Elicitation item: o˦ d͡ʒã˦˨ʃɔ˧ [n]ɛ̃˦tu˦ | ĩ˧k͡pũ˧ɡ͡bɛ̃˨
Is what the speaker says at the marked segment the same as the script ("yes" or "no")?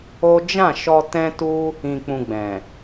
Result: no